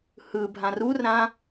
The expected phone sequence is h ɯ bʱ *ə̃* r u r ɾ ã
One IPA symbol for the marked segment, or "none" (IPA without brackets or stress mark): ã